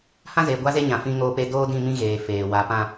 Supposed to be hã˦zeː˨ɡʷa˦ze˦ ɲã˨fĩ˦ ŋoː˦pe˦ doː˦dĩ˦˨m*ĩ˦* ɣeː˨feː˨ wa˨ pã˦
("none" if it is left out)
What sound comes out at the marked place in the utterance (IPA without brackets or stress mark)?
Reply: ĩ˦